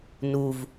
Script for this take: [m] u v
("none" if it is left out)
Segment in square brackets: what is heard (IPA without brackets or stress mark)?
n